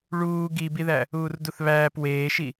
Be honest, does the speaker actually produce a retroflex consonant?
yes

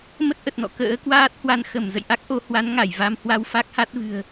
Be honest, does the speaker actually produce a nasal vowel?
no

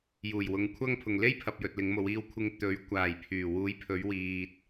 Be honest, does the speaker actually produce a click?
no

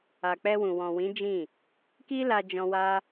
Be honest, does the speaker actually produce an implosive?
no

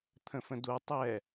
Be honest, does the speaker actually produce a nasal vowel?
yes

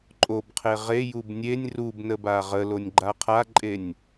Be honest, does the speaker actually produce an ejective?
yes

